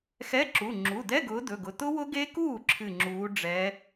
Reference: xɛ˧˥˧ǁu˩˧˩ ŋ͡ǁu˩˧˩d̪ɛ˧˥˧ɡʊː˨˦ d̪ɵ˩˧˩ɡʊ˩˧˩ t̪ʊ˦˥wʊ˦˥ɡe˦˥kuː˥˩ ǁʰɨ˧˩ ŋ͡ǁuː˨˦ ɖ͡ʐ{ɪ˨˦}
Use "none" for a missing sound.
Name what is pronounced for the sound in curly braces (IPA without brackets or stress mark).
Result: ɛ˨˦